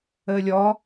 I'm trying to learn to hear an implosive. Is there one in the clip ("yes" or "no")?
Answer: no